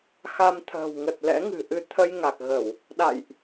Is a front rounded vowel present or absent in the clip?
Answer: absent